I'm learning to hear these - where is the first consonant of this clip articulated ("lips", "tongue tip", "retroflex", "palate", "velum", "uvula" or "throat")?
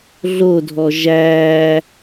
tongue tip